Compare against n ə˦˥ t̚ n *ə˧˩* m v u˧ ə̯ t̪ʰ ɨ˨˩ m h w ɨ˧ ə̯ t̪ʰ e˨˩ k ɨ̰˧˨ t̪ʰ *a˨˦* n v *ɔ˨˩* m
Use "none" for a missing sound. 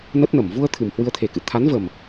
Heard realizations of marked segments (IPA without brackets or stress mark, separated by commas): ə˧˩, a˨˦, ə˨˩